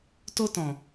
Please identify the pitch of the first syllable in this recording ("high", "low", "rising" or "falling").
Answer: high